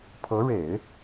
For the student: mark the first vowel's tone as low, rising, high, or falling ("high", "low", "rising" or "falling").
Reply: rising